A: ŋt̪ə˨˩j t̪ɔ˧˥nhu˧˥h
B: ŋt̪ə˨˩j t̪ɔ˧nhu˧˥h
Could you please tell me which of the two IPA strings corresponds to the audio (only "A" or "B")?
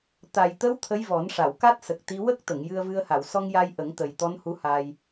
A